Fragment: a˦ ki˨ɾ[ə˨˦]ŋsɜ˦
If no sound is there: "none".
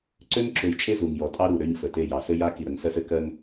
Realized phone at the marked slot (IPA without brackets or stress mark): ə˨˦